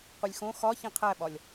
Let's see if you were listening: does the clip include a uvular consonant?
yes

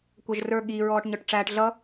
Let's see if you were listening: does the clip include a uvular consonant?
no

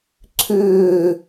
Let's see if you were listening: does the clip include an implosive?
no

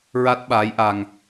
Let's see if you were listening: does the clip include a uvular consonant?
no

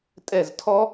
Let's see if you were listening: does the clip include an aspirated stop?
yes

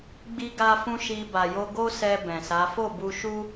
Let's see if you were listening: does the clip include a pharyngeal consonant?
no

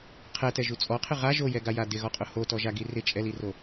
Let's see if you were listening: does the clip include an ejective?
yes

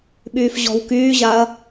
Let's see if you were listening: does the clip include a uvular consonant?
no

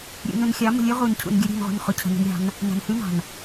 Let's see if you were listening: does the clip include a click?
no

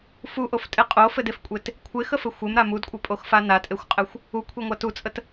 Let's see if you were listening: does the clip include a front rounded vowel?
no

